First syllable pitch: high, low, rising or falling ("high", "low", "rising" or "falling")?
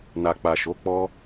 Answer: low